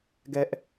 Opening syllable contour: high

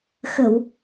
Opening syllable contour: low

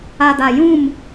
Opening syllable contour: low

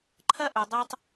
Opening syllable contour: high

